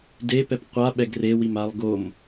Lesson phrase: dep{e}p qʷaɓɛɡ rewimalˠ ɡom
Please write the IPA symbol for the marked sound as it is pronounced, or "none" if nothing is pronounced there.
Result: ɛ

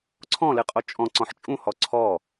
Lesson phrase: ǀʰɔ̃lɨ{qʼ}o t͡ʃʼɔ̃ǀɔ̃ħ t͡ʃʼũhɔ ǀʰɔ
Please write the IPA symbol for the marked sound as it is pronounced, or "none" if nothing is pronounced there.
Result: qʼ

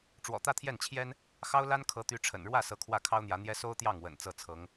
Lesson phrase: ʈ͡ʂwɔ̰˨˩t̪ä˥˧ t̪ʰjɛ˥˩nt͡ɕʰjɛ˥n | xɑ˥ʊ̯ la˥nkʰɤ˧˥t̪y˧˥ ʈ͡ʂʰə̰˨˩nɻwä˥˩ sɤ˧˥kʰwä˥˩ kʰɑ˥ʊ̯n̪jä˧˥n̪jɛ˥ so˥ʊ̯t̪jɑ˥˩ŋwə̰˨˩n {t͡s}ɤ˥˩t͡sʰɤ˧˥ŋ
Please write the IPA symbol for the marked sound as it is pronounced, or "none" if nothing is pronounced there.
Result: t͡s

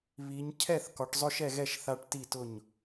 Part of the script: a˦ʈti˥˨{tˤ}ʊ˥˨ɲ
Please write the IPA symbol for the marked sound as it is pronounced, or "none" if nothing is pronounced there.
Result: t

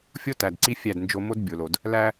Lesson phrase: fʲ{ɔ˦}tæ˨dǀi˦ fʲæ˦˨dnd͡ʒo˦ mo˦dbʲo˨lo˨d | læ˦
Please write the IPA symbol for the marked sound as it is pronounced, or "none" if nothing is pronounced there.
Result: o˦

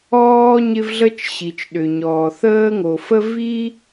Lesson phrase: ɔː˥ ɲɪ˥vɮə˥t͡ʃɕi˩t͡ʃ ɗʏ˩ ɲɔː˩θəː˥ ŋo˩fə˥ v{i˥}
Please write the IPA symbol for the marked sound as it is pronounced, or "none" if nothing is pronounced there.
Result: i˥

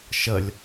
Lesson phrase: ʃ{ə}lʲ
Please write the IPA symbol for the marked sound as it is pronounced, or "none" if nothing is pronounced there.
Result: ə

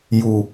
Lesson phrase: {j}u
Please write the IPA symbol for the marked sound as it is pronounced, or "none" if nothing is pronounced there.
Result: j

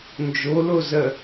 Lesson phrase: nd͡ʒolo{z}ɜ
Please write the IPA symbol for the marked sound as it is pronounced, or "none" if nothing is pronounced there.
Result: z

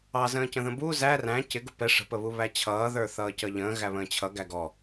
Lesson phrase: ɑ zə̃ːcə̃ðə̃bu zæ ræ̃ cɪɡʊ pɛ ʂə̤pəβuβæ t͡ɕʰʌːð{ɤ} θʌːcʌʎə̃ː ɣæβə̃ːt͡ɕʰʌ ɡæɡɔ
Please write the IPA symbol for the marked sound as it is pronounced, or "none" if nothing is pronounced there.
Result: ə˞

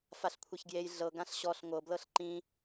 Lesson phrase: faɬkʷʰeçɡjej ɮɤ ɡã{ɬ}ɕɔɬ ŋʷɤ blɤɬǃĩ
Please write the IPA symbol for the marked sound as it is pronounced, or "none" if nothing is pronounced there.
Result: ɬ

